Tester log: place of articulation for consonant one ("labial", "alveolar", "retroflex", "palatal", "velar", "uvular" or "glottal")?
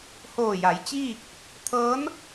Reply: glottal